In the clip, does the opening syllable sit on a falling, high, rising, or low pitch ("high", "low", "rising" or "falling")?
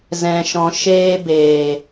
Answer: low